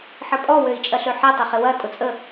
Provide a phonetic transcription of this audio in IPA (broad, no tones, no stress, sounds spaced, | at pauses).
ħ ə pʼ ɔ w ø i̯ t͡ʃʼ ɐ ɬ ø ħ ɪ tˤ ɐ χ ɪ w ɐ tʼ ʊ t͡sʼ ə